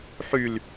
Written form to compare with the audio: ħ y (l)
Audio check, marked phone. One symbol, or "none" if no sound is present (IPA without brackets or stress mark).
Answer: l